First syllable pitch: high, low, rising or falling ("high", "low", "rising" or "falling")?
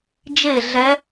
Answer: falling